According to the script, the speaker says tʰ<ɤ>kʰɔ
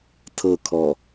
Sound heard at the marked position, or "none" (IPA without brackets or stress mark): ɤ